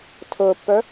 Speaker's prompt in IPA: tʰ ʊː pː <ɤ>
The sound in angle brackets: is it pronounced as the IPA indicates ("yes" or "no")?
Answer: no